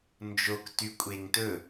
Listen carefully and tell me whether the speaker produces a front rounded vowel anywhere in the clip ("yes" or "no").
yes